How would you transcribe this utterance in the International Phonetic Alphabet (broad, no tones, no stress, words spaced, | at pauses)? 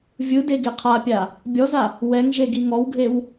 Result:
vʲɯde ɡeqʰapʲa | bʲɔza | wɛŋʒe ɡiŋɔwɡʱew